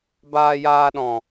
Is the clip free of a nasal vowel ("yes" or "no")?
no